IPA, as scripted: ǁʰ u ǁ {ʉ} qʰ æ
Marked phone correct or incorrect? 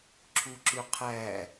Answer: correct